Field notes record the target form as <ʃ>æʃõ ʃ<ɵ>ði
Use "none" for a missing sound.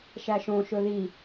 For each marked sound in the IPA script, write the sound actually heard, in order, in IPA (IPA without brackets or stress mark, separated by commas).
ʃ, ɵ